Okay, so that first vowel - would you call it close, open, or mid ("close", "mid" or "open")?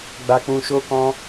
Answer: open